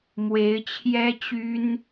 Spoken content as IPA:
mwe˧˥ɪ̯ t͡ɕʰjɛ˥ t͡ɕy˥n

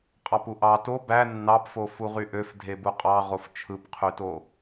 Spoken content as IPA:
qʼɑpuʔɑ to bæ nːɑpfo fuʁyʔøf dʱebuqʼɑ ʁoft͡ʃʰɯpqʰyto

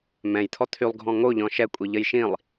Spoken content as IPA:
mɛ̃jt̪ʰɔ t̪ʰylˠɡʱɔ̃ ŋoʎɔ̃ ʃɛkʷʼiʎəj ʃĩlˠ

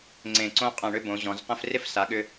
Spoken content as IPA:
ŋ͡ǀẽ˧˩ǀõ˥ qʼɐ̃˧˩ɳʏ˥˧bõ˩˧ ʑɔ̃˩˧zqə̃˥˧f rɪ˥fsa˩˧ɠʏ˧

